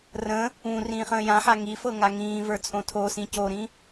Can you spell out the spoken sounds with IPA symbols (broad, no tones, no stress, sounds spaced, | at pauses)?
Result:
r ə̃ | ũ r ĩː χ ə̃ː j ã ħ a ŋ i f ɤ ŋ a ŋ ĩː v ə˞ t͡sʼ õ tʰ o s ĩ c o ɾ ĩ